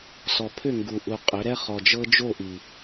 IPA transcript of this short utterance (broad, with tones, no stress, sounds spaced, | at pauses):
s ɔ˨ pʰ ʏ˦˨ ŋ ɡ u˨ ʔ u˨ qʼ ʏ˨˦ ɾ ɛ˦ χ ɔ˨ d͡ʒ ɤ˦ d͡ʒ o˦˨ ʔ i˨